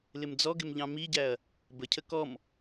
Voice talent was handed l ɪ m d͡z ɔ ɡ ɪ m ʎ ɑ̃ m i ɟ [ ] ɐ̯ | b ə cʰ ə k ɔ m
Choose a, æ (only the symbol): æ